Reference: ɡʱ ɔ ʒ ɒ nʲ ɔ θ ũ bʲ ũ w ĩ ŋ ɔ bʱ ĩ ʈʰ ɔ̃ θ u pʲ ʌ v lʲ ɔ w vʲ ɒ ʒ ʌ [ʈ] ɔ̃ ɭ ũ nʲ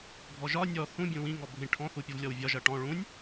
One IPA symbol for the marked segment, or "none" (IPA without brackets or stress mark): ʈ